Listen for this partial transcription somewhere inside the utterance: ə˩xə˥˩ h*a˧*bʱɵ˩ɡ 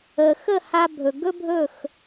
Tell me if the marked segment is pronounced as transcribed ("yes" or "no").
yes